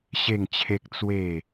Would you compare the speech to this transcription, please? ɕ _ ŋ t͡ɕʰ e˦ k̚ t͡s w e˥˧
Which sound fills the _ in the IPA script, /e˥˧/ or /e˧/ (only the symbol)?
e˥˧